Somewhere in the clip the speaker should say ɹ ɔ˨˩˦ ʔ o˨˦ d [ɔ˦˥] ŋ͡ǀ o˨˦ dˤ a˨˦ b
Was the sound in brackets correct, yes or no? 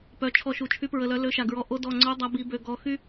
no